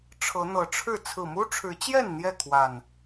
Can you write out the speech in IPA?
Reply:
ʈ͡ʂʰɤ˨˦n̪ɤ˨˦ʈ͡ʂʰɻ̩˥˨ t͡sʰɹ̩˨˩mu˦ʈ͡ʂʰɻ̩˨˦t͡ɕjɛ˥˨n n̪jɛ˥˨kʰwa˨˩n

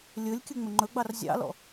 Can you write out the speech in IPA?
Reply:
lʲɵlʲkʲɵ ŋ͡mɵŋ͡ǃɵɡ͡bɑr zʲɑ̰lɔ̰

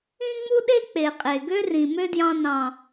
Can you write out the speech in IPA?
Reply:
ĩ˦ŋ͡mu˦ɗe˦ k͡pe˨qʼe˨ ɡø˦rĩ˨mø˦djɑ̃˧ nɑ̃˨

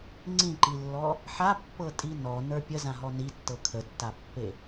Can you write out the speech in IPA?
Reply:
ŋ͡ǀĩǃilːɔ | ħapːɤtʼi nɔnə˞ pʲəzãɦɔ nitːɤ kʰətːapːe

